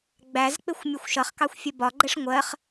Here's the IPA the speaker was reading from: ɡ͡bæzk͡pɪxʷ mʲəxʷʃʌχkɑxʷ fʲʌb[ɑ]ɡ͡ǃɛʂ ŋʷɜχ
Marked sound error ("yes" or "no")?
yes